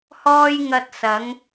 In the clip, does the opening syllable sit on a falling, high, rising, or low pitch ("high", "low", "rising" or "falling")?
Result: high